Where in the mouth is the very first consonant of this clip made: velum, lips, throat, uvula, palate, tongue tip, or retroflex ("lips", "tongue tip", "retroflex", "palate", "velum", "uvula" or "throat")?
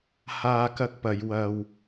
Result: throat